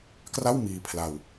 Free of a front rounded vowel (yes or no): yes